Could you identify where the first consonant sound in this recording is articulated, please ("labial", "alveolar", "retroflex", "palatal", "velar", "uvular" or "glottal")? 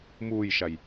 labial